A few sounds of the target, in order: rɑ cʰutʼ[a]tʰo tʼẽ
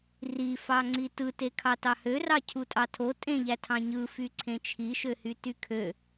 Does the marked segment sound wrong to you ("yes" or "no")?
yes